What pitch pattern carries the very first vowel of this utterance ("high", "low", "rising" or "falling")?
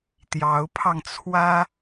rising